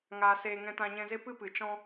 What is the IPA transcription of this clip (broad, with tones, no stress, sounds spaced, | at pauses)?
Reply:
ŋ aː˨ s eː˨ ŋ ɛ̃˧ t ã˧ ɲ ɛ̃˧ z e˦ p ɨ˦ p ɨ˨ t͡ʃ ɔ̃˧